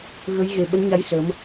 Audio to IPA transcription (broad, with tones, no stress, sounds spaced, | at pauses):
ɣ ə˨˦ j ɣ e˨˩ ɓ ə˨˦ n ɲ a˨˦ j s ə˨˦ m